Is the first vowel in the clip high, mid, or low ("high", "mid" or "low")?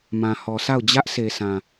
low